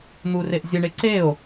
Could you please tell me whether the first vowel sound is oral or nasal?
oral